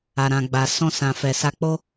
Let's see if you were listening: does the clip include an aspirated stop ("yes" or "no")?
no